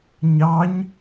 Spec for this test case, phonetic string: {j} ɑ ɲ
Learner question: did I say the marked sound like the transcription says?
no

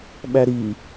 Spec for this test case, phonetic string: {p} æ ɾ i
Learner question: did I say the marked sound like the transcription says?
no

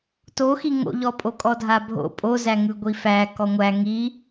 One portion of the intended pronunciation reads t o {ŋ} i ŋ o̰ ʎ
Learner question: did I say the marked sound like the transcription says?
no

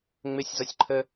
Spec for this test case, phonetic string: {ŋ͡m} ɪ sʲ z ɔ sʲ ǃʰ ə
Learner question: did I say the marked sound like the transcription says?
yes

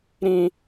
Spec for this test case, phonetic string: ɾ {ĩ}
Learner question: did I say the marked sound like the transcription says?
yes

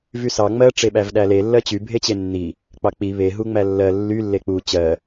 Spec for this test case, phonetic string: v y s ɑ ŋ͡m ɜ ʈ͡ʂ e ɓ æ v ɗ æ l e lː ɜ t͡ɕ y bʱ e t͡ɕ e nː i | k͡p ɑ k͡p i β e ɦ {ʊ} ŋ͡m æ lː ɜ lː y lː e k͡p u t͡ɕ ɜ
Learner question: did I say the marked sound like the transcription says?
no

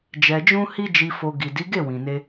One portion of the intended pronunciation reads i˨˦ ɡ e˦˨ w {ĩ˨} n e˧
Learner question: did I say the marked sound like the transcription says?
yes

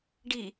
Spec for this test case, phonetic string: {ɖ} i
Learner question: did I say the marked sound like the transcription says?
yes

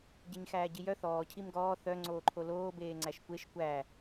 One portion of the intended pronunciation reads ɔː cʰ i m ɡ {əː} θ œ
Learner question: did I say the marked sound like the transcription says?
no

